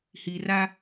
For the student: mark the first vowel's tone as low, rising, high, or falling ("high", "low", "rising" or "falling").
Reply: low